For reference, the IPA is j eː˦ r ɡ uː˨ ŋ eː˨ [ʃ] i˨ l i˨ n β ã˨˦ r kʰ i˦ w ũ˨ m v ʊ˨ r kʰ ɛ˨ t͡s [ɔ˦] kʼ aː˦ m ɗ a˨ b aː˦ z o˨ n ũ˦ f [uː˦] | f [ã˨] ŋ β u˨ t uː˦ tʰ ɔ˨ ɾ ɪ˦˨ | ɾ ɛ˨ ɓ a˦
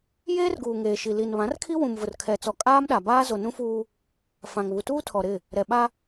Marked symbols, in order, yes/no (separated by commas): yes, no, yes, yes